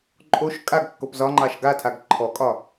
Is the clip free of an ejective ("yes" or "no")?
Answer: no